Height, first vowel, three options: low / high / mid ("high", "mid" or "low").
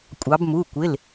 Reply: low